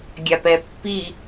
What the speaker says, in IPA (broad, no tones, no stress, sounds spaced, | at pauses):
ɡʲ a p ɛ pː i